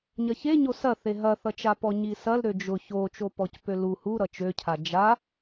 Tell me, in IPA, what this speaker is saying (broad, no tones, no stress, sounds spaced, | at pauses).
ɲ ɐ ç e ɲ o s ɐ θ e ɦ ɐ θ ʌ t͡ʃ a p ɔ ɲ i s ɐ l ɾ ø d͡ʒ ʊ ç o t͡ʃ o p ɔ c p ø l u h u ɾ ʌ t͡ʃ ø cʰ a d͡ʒ a